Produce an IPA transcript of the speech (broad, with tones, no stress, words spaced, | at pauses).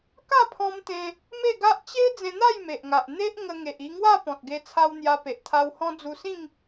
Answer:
ka˥˧pʰɔ̃˧mt̪ẽ˧ | me˥˧ɡa˦ʔ t͡ɕe˦ d͡zẽ˧n̪a˥˧j me˨ʔŋa˨ʔ n̪e˦ʔ ŋə˧ ŋe˨ʔi˧ŋwa˥˧ pɔ̃˨t̚ɡe˧t͡sʰa˧w n̪ja˧pe˨ʔt̪ʰa˧w hɔ̃˧ d͡zu˧sĩ˥˧ŋ